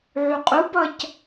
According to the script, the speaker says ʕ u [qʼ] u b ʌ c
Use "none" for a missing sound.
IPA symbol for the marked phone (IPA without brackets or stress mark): qʼ